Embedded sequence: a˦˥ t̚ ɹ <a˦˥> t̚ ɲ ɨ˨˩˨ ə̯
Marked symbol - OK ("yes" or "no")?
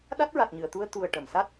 no